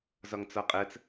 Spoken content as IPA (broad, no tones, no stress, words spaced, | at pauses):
zɒŋt͡sɒqʼɜt͡s